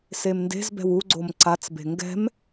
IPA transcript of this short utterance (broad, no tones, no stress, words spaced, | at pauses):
semnde̤zbɛ̤w uɡ͡ǀom ǀat͡sbe̤ ŋɡɛ̤m